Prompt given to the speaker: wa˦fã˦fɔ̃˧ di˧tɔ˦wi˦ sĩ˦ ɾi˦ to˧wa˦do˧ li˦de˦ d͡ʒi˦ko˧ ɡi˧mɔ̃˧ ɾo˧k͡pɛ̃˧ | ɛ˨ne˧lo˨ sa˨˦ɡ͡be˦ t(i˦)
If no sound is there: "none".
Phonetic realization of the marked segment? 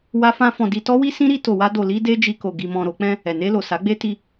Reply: i˧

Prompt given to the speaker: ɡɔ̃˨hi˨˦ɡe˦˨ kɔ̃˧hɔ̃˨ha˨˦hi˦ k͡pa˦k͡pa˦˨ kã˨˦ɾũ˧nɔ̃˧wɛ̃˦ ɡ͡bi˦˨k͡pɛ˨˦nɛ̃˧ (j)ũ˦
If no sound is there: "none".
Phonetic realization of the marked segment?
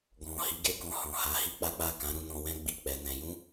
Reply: j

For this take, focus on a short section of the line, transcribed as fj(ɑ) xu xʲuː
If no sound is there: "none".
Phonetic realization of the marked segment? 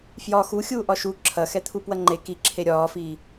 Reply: ɒ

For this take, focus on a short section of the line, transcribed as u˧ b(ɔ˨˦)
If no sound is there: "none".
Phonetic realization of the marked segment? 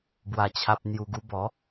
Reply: ɔ˨˦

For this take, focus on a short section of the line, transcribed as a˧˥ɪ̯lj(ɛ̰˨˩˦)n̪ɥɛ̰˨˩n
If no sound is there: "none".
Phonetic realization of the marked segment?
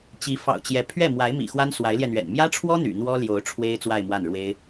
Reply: ɛ˧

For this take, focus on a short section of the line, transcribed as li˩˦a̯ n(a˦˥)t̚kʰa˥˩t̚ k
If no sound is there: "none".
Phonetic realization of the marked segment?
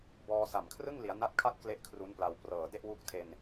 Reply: a˦˥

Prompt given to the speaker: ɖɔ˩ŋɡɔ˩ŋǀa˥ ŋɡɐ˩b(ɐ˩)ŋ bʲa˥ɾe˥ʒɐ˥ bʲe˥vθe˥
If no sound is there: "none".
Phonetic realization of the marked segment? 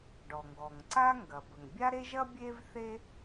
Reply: ə˩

